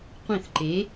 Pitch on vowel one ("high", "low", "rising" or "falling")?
falling